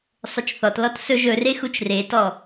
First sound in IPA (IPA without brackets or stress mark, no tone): sˤ